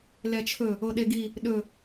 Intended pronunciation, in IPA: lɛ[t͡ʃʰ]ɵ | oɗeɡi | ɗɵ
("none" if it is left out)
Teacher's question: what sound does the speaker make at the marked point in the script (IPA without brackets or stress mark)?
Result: t͡ʃʰ